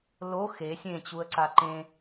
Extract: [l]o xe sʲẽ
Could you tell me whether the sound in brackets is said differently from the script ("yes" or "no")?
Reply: no